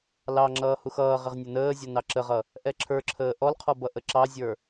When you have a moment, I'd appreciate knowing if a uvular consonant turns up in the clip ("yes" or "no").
yes